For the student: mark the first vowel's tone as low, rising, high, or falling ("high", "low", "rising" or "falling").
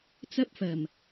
high